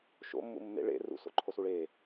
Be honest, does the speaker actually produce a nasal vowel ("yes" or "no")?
no